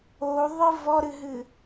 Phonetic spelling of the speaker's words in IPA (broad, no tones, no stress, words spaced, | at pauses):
oðˤɨ vɔɾɨɦɨ